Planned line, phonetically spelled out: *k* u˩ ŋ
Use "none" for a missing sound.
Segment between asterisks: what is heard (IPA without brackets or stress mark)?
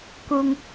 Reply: k